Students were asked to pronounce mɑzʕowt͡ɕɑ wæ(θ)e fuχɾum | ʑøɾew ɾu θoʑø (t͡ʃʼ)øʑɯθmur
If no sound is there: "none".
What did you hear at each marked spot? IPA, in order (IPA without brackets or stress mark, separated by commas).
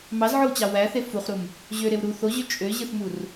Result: θ, t͡ʃʼ